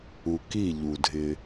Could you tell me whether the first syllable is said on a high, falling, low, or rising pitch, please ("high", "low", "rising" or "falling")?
low